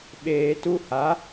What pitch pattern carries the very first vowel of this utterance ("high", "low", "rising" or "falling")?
low